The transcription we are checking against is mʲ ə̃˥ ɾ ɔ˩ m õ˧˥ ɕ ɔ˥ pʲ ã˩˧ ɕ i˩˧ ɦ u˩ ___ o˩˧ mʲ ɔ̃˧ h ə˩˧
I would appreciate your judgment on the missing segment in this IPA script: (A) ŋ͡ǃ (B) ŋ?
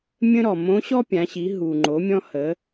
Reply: A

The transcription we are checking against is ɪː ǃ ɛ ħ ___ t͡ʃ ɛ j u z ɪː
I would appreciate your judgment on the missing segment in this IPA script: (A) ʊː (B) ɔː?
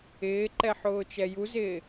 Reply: A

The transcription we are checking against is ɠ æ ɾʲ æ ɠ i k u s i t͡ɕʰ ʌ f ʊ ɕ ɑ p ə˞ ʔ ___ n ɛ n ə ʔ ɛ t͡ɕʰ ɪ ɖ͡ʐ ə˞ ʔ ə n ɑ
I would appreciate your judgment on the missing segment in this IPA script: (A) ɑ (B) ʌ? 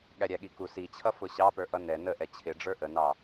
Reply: B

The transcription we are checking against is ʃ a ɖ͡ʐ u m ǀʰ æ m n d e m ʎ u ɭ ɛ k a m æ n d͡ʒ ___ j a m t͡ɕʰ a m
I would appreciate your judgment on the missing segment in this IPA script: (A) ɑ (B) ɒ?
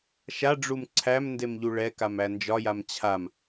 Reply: B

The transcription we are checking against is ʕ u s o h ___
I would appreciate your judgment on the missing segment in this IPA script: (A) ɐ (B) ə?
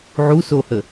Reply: B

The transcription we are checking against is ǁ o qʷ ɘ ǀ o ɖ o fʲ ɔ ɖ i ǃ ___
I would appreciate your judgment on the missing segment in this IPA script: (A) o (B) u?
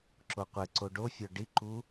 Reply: B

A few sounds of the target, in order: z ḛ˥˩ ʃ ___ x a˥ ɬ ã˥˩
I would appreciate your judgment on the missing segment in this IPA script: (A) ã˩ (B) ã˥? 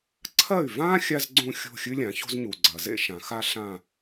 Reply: A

